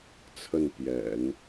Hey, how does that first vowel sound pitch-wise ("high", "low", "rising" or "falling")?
falling